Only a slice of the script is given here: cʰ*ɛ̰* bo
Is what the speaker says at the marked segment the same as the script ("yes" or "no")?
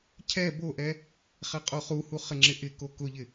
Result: no